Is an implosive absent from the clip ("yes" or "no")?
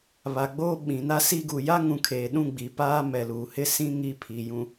no